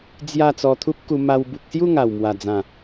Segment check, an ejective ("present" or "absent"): absent